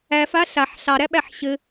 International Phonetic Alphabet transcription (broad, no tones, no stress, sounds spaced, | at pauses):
æ f a ɬ a ħ ɬ ɑ ɾ æ ɓ æ ħ ɕ ɘ